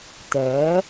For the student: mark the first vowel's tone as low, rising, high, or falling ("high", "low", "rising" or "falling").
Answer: rising